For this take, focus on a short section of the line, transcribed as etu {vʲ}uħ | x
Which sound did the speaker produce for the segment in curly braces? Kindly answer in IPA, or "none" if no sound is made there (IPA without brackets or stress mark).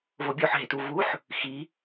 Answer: v